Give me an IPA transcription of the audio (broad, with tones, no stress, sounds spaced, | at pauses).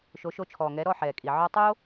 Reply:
ʃ o˨˦ ʃ o˧ t͡ʃʰ ɔː˨ ŋ ɛ˨˦ ɾ ɔ˦˨ ħ ɛː˨ kʼ i˨ ʕ ɔ˧ tˤ o˦